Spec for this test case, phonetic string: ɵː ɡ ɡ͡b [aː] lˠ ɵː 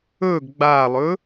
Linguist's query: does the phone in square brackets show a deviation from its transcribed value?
no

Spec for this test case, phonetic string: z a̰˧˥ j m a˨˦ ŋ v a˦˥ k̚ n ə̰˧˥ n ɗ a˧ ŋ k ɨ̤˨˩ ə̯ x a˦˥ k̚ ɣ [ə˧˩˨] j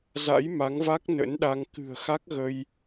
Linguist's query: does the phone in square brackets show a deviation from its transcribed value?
yes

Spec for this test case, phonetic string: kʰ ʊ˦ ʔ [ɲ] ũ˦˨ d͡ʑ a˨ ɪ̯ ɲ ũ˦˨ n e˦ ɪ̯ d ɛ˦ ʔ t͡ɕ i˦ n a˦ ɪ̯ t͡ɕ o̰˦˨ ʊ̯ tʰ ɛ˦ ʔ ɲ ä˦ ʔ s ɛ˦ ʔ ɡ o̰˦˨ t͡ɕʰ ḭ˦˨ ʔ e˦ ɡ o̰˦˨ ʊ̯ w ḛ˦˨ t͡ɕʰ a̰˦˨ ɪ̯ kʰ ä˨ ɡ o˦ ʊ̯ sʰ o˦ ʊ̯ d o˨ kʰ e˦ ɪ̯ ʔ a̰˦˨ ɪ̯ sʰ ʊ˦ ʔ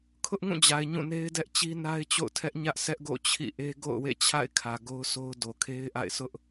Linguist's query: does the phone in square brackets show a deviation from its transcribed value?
yes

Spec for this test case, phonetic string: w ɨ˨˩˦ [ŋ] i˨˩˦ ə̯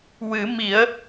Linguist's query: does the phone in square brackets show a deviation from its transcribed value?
yes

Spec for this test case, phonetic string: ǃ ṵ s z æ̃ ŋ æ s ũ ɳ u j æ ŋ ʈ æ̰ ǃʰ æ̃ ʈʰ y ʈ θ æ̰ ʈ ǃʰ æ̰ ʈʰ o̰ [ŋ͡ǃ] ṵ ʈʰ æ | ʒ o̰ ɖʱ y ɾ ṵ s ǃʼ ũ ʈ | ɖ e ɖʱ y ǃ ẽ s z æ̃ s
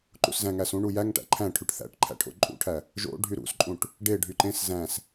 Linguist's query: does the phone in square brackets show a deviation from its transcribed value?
yes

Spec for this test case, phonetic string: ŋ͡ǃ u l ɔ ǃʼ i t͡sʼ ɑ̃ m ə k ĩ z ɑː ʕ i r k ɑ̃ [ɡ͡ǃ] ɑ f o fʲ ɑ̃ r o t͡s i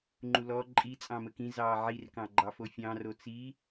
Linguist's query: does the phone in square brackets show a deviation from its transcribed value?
no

